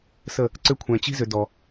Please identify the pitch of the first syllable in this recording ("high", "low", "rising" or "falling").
falling